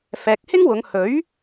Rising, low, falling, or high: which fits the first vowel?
low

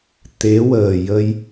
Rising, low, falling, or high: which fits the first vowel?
rising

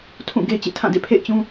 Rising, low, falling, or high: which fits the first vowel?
falling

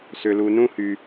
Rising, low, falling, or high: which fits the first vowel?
low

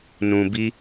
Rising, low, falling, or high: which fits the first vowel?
low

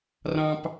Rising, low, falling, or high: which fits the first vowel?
high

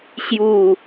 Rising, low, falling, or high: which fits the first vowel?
falling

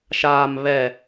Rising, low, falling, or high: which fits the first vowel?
low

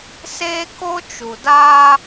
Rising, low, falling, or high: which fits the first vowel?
high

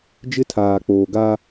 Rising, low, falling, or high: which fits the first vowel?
high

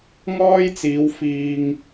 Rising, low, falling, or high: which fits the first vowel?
high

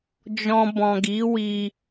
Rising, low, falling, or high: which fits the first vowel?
low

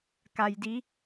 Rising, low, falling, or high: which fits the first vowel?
low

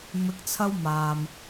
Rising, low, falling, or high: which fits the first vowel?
low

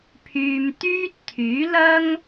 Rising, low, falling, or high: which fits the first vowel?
low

